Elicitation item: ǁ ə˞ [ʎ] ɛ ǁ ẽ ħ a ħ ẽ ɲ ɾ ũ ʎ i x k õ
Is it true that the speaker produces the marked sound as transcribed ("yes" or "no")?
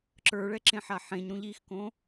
no